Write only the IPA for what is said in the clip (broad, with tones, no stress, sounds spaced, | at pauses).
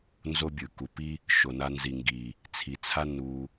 n z o˦ bʲ ɯ˨ k u˨ p i˦ | ʃ o˨ n a˧ n z i˨ ŋ ɡ i˨ | t͡sʰ i˨ t͡sʰ a˦ n u˧